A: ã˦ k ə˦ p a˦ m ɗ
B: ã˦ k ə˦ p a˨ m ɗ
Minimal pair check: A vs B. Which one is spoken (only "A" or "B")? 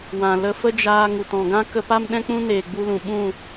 A